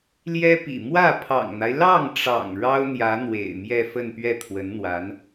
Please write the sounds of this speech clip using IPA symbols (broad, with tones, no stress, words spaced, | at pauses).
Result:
ljɛ˥pḭ˨˩ mwä˥˩ pʰɑ̰˨˩ŋn̪a˦ɪ̯ lɑ˥˩ŋʈ͡ʂɑ̰˨˩ŋ ɻɑ˥ʊ̯n̪jä˧˥ n̪wḛ˨˩ɪ̯mjɛ˥˧ fə˥˧npɥɛ˥˩t̪ʰwə˧˥nn̪wa˧˥n